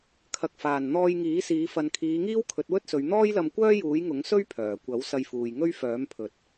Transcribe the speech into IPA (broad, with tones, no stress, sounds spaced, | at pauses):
kʰ ɐ˨ k̚ f aː˨˩ n n̪ ɔː˧ j ŋ iː˨˥ s iː˨˧ f ɐ˨ n kʰ iː˨˧ ŋ iː˥ w kʰ ɵ˨˥ t̚ w ɵ˥ t̚ s ɵ˨˧ ɥ n̪ ɔː˥ j l ɐ˧ m kʷ œː˥ j uː˨˥ j ŋ ʊ˨˥ ŋ s ɵ˥ ɥ pʰ œː˨˩ kʷ ɐ˨˥ w s ɐ˧ j f uː˨ j ŋ ɵ˥ ɥ f œː˨˥ m pʰ ɵ˨ t̚